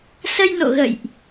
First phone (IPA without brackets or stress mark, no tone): s